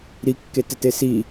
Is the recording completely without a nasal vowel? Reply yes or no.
yes